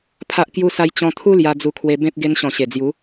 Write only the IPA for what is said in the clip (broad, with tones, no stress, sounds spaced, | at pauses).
pʰ a˦ ʔ k j u˦ s a˦ j t͡ɕ ɔ̃˧ t̪ʰ u˦ l j a˧ d͡z u˧ kʰ w e˧ b ẽ˦ p̚ ɡ e˧ n ɕ ɔ̃˨˩ ɕ e˨˩ d͡z j u˨˦